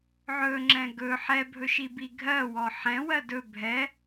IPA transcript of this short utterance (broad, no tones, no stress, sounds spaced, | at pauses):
ʕ ɵ ŋ͡ǁ ɛ̃ ɡ ɵ ħ ɛ bʱ ɵ ʃ i b i ɡʱ ɜ w ɔ ħ ɛ̃ w ɜ d ɵ bʱ ɛ